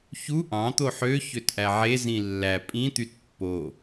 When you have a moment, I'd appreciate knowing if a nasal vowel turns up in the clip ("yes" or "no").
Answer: yes